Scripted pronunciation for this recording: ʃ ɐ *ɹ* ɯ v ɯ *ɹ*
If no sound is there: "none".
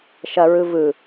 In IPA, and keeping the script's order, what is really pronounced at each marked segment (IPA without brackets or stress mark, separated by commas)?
ɹ, none